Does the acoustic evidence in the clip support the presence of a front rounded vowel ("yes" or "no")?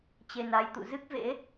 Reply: no